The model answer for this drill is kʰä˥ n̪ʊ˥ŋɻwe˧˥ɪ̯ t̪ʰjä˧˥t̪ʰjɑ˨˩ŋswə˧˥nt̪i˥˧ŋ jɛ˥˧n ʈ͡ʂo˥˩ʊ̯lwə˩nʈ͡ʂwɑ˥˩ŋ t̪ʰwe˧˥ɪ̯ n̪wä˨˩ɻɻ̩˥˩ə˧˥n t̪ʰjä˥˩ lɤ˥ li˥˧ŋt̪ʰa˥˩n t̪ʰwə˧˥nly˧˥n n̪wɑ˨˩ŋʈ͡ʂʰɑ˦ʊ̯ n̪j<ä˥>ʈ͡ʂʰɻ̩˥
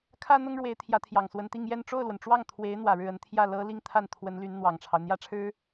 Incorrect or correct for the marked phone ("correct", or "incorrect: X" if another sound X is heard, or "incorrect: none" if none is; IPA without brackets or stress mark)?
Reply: correct